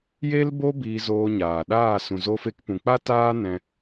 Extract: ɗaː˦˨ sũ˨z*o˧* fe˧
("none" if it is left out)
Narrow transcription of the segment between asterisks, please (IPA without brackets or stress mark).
o˧